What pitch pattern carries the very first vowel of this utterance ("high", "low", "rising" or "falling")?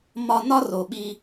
low